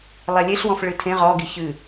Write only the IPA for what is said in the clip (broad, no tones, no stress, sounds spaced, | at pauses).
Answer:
lˠ ɛ lʲ e ɬ w ɔ̃ f ɭ ɨ tʰ ẽ ʁ ɔ ɡ i ç ɨ